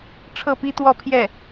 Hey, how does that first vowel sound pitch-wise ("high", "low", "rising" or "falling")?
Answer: falling